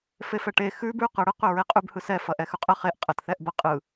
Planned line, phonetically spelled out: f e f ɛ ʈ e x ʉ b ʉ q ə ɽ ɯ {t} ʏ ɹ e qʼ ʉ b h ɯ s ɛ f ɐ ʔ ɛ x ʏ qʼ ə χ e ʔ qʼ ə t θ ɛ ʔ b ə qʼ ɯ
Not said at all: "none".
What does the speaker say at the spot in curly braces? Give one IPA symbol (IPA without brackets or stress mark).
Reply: q